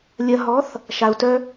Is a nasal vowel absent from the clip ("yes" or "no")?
yes